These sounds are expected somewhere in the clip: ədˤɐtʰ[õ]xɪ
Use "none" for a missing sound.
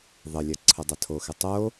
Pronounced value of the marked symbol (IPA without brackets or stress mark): o